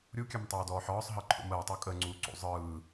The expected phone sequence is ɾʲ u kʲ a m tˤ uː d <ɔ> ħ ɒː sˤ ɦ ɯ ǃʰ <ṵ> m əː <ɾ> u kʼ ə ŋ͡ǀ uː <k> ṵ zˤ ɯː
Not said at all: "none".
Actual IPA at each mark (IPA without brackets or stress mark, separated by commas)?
ɔː, ṵ, tˤ, ǀ